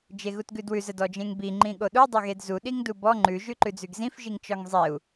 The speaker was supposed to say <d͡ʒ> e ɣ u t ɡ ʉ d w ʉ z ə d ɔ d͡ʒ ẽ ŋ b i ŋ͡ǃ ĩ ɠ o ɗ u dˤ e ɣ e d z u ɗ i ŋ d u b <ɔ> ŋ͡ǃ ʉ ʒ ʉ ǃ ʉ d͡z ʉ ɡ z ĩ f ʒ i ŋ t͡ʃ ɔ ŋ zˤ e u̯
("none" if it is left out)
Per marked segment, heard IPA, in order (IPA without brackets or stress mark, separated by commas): d͡ʒ, ɔ